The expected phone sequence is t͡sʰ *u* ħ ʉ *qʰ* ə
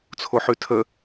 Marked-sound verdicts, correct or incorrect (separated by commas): incorrect, incorrect